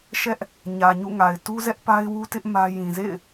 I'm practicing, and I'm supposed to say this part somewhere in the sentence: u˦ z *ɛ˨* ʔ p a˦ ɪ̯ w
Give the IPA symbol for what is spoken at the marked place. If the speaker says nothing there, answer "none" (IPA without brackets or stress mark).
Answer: ɛ˦